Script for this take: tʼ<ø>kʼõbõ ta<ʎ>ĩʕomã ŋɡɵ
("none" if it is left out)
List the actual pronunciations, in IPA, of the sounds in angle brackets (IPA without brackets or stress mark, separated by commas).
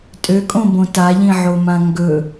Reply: ø, ʎ